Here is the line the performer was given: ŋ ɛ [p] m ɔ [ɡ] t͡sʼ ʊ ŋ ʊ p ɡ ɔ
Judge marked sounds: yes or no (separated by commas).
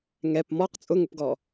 yes, no